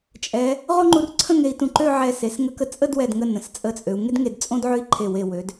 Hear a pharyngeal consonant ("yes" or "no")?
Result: yes